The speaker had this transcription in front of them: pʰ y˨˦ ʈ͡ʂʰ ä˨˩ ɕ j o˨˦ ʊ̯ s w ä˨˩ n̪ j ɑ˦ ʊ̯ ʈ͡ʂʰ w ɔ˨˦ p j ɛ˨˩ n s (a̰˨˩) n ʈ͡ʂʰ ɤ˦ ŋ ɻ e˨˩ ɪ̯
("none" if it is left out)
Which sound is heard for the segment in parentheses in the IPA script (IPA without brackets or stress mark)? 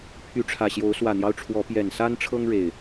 a˦